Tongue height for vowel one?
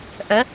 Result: mid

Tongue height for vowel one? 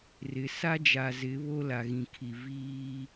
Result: high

